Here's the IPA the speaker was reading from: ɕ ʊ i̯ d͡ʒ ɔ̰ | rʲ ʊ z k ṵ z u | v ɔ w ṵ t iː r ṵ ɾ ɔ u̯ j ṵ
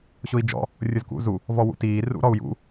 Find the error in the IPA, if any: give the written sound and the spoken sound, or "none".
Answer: none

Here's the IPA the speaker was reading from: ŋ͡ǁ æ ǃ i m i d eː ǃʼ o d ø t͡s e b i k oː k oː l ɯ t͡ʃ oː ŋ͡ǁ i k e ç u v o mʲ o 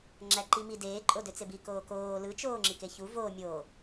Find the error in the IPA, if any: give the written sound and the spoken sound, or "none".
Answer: none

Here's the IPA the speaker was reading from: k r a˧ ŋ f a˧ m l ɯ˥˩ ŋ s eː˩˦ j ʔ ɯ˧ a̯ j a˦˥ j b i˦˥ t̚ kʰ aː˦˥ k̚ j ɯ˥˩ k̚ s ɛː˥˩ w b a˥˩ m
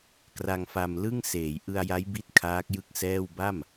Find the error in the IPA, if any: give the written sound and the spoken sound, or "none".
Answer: none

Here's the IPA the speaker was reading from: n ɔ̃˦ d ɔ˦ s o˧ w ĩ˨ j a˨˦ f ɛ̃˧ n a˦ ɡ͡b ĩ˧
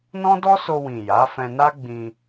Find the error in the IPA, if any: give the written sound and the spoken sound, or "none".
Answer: none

